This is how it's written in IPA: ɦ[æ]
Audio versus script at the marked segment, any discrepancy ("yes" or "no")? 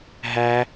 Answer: no